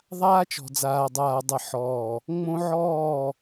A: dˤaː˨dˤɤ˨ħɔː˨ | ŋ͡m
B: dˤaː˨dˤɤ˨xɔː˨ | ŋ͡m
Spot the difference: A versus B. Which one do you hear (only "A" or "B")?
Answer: A